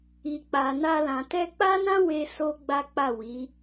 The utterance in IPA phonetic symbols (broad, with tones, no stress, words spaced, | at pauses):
i˨k͡pa˨na˧ lã˨tɛ˧k͡pa˦nã˦ we˦ so˦ɡ͡ba˦k͡pa˦˨ wi˨˦